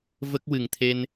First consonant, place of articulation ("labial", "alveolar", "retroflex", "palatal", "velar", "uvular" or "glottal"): labial